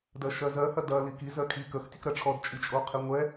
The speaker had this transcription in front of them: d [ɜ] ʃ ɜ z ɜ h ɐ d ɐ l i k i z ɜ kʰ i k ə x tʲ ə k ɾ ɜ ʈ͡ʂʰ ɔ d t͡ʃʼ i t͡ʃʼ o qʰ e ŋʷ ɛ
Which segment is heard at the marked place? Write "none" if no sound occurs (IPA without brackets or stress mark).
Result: ɜ